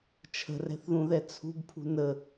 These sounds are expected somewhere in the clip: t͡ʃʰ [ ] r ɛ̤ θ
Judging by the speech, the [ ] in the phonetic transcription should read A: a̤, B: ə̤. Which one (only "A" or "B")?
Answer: B